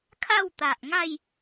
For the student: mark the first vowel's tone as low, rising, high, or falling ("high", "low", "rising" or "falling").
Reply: falling